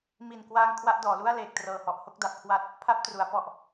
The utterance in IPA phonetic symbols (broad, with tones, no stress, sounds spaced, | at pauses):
m i˨˩ n k w aː˧ ŋ kʰ w a˥˩ ʔ d ɔː˩˦ l u˥˩ a̯ l eː˨˩ k̚ t r ɤː˨˩ h ɔ˨˩ ʔ h o˦˥ k̚ d a˨˩ p̚ kʰ w a˦˥ t̚ | pʰ a˦˥ p̚ t r u˩˦ a̯ p ɔ˨˩ ʔ